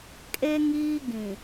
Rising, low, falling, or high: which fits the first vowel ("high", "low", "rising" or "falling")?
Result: high